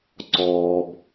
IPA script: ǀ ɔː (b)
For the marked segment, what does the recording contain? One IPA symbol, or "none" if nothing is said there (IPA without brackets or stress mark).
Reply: b